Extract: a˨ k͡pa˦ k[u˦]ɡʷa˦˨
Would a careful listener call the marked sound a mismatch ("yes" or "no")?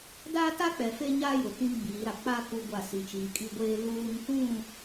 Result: no